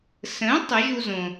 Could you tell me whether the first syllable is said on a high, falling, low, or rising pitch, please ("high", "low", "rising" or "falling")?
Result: rising